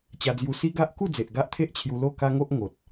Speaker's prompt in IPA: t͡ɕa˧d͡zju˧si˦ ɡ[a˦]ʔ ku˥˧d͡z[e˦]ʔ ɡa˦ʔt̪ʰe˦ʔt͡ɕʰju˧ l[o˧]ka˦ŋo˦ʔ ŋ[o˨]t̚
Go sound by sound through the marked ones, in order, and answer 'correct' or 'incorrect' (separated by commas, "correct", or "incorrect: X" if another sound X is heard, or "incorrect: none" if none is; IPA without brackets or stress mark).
correct, incorrect: e˨, incorrect: o˥˧, correct